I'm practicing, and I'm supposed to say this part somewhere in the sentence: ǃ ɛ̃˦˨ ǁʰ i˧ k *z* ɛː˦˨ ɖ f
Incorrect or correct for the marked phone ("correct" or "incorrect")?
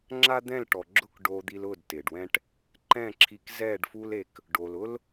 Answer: correct